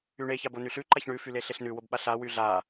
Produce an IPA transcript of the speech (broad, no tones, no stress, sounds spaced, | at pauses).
y ɳ e ç a b o n y ɬ ʉ ǃ a ç ɳ ʉ f y l e ɬ e ɬ n ʉ w o b ɓ a ɬ a w y ɮ a